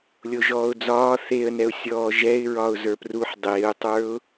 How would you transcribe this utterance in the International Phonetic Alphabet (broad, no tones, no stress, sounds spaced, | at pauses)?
lʲ o ʒ ɔː ʊ̯ d͡z ɒː θ e ə̯ n ɛ ʊ̯ sʲ ɔː ʒ ɛ ɪ̯ ɹ ɒ ʊ̯ z ə˞ p r u ħ dˤ eː ʊ̯ tˤ ə˞ ʊ̯